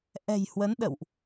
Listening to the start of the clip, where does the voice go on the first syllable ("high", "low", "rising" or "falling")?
low